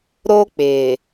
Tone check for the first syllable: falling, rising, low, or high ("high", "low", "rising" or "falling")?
high